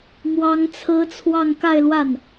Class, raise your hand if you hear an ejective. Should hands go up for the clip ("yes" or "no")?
no